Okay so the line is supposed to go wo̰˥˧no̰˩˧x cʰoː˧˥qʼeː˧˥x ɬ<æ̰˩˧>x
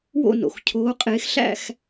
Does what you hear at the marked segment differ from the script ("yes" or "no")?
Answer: yes